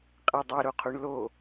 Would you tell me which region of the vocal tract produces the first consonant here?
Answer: uvula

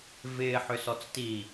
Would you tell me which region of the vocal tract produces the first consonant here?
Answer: lips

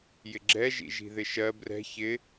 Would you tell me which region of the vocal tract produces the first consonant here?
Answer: palate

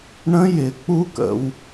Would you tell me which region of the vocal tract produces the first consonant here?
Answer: retroflex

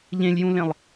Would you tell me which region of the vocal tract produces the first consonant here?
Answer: palate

